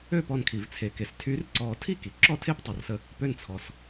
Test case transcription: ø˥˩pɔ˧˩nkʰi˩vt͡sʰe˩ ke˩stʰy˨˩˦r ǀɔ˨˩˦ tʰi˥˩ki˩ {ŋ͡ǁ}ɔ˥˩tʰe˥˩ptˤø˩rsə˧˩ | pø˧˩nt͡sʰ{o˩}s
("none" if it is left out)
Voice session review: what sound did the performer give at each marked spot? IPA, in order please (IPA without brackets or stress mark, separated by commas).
ǁ, ɔ˩